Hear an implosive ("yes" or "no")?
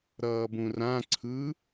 no